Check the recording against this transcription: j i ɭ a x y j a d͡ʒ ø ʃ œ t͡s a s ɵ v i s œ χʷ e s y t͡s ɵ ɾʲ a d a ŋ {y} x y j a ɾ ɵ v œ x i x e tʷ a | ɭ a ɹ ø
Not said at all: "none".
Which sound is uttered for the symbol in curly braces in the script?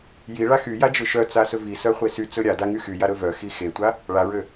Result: y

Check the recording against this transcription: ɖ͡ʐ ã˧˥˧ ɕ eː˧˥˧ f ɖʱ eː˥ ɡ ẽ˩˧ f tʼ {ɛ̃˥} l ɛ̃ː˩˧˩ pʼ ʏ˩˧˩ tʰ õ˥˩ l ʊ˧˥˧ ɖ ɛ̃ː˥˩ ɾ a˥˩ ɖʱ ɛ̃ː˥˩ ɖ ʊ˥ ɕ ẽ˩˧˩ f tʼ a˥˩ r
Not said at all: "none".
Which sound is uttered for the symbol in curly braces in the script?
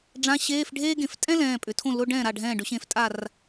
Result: ɛ̃˥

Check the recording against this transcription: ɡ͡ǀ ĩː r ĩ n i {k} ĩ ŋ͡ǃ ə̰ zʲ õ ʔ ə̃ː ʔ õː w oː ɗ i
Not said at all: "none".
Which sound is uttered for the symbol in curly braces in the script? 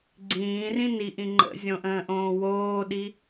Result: ʔ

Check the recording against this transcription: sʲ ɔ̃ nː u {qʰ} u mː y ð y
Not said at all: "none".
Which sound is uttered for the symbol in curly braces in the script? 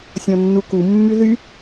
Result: k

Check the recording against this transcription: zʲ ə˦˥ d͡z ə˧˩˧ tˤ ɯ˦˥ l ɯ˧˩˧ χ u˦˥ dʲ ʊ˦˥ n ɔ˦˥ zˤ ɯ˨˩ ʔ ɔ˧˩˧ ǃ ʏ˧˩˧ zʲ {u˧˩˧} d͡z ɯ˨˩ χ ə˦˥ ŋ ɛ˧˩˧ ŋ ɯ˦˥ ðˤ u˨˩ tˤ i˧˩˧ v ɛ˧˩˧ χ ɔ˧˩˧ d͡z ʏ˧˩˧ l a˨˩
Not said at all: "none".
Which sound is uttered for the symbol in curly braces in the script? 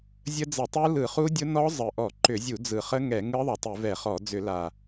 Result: u˧˩˧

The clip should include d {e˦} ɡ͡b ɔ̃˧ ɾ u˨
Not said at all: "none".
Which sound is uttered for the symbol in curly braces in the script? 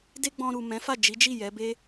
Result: e˦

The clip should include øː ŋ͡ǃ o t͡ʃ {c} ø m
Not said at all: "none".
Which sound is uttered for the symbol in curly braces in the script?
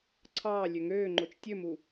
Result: tʲ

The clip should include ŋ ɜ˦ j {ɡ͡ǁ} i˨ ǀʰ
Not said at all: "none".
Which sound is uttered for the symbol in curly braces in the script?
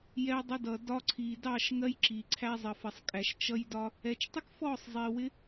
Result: ǁ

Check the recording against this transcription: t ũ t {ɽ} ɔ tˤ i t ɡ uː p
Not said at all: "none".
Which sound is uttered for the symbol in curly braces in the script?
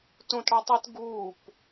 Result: ɽ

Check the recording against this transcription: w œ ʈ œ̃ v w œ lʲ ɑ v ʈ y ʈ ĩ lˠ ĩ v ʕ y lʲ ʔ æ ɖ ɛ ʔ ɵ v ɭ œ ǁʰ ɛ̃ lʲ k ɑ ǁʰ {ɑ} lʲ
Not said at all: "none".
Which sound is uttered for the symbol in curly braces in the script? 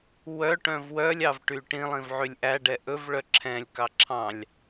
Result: ɑ̃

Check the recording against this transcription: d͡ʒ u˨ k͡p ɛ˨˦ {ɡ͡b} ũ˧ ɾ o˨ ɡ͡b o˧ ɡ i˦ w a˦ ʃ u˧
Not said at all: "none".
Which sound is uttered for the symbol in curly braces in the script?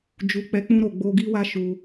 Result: k͡p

